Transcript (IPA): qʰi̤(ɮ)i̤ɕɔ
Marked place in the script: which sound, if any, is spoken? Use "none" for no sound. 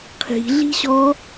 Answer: ɮ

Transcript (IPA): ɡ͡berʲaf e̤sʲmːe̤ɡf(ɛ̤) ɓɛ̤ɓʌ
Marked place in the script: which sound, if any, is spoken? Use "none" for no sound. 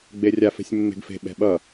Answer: e̤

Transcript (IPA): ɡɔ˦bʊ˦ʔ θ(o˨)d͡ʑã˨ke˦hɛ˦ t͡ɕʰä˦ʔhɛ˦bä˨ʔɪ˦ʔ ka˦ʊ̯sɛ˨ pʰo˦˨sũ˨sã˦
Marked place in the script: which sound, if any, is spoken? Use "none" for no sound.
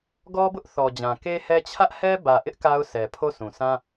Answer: ɔ˨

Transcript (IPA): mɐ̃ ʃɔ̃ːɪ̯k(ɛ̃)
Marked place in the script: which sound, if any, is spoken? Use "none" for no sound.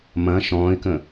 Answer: ə̃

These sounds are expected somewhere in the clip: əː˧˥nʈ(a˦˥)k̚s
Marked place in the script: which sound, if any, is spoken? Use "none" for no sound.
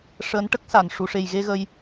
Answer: ə˦˥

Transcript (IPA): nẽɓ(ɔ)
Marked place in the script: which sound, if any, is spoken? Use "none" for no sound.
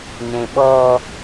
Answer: ɔ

